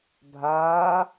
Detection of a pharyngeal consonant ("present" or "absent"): absent